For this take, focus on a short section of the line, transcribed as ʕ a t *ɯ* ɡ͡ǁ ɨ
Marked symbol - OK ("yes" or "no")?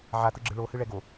yes